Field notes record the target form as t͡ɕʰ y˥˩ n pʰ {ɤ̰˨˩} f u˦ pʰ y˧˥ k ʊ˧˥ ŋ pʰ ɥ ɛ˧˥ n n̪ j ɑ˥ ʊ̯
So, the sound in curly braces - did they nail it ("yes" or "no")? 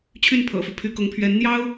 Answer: yes